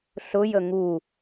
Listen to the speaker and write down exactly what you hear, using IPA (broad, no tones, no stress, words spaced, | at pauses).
ɬʊjə ŋu